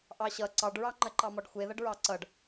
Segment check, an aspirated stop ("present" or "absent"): absent